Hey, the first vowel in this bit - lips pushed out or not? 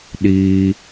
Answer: no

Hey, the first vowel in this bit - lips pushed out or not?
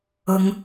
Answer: yes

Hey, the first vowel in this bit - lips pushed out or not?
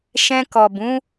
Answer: no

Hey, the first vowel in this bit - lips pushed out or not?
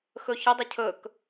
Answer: yes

